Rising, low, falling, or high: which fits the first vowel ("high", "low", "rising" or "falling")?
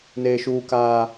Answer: high